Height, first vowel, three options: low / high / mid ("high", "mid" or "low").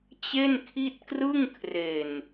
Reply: mid